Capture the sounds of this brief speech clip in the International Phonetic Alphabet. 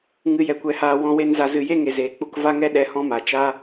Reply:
ŋ ɨ˨ j ɛ˨ kʷ ɛ˨ h aː˨ w ɔ̃˧ w e˧ n z a˨ z ɨ˨ j e˦ ŋ e˨ z eː˨ k͡p u˧ k v a˦ ŋ ɛ˦ ɗ ɛ˧ h ɔ̃˦ m a˨ t͡ʃ a˦

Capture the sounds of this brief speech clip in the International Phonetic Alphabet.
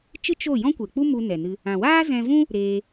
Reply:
t͡ʃ ɨ˦ t͡ʃ o˦˨ j ɔ̃˦ kʷ ɛ˨ k͡p u˦ m u˧ n ɛ˨ n ɨ˧ | ã˨ w aː˦ z ɛ̃˧ v ũ˦ | ɾ eː˧

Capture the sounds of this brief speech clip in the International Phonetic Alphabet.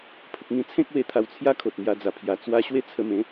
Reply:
pʰ ə˨ k̚ ŋ ĩ˧ t͡sʰ ẽ˦ k̚ w e˧ t̪ʰ a˧ w t͡sʰ j a˦ kʰ o˨ t̚ m j a˧ d͡z a˨˩ pʰ j a˨˩ t͡s w a˧ ɕ w e˦ t͡sʰ ə˧ m ẽ˨˦

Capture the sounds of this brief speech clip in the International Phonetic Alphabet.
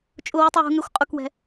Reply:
t͡ʃʼ ʊ w u tˤ w ṳ ŋ ɛ xʷ qʼ ʊ k w ɛ̤

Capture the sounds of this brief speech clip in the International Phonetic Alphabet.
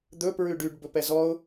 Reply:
d̪ ɵ p ɹ ʉ ɖ y ɖ b ɵ p ɛ z ɔ ʊ̯

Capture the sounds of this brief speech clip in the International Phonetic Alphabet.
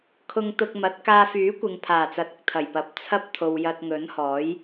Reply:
kʰ ʊ˧ ŋ t̪ ʊ˧ k̚ m ɐ˨˥ t̚ k aː˧ f yː˨˥ kʷ ɪ˨ ŋ pʰ aː˨˩ t͡s ɐ˨ t̚ ʊ˧ k̚ t̪ʰ ɐ˨˩ j p ɐ˨˥ p̚ t͡sʰ ɐ˥ p̚ t̪ʰ o˨ w j ɐ˧ t̚ ŋ ɵ˨˥ n h ɔː˨˥ j

